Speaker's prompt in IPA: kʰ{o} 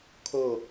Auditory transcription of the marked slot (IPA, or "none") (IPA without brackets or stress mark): o